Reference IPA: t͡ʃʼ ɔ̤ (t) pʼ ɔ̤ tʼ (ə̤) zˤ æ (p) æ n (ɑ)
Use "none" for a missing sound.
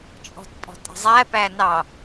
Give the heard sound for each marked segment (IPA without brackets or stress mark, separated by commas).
t, ə̤, p, ɑ